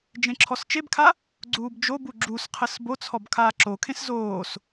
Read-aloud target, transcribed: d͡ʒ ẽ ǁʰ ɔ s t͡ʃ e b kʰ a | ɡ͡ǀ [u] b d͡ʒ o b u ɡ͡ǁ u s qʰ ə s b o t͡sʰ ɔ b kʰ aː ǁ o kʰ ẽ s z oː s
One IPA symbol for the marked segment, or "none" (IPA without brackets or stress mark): uː